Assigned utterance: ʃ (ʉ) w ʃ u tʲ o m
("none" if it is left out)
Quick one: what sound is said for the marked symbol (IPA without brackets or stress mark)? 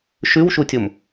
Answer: ʉ